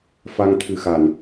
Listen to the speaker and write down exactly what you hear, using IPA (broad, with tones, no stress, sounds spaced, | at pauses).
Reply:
f a˧ ŋ t̪ʰ ɨ˨˩ x a˨˩˨ n